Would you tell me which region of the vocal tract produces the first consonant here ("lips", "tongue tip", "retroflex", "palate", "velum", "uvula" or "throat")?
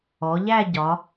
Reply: palate